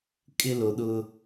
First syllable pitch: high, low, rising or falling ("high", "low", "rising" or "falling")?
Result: high